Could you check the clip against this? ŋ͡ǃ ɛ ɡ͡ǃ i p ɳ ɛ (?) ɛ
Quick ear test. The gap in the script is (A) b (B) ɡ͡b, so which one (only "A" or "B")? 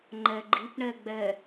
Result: B